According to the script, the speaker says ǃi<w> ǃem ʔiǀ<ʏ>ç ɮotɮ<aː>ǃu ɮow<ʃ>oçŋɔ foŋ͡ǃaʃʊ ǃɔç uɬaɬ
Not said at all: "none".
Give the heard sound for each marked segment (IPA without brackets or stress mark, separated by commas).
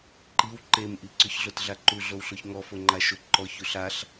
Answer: w, ʏ, a, ɬ